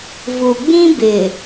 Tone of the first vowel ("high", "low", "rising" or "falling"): low